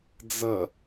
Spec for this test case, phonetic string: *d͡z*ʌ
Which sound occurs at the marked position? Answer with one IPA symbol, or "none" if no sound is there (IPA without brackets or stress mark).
d͡z